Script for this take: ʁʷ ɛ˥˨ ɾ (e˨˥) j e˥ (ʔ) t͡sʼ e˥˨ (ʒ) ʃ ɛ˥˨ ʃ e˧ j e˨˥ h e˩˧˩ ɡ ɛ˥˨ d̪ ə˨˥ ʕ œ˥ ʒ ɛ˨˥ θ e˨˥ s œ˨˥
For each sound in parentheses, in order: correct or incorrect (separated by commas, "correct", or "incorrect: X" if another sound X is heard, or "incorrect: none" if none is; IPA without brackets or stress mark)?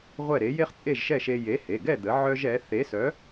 correct, incorrect: χ, correct